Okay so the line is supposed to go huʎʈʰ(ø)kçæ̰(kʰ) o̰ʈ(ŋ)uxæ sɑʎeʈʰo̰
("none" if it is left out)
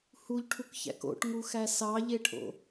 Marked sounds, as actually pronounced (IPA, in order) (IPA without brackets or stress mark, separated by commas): u, k, ŋ